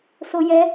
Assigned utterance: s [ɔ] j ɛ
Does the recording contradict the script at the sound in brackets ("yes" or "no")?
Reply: yes